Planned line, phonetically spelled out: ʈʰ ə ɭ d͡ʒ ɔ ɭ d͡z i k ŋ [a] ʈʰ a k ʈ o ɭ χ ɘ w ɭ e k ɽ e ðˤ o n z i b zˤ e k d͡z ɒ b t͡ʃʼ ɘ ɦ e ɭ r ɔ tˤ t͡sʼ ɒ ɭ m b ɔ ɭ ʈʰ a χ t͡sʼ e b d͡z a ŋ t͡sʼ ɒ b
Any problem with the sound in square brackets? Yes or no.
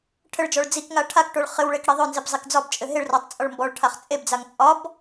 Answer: no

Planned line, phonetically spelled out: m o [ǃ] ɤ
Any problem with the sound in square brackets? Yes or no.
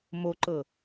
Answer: no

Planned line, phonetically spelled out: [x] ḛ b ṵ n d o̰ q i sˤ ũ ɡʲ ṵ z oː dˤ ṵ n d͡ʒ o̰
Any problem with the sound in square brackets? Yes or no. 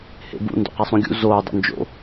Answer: yes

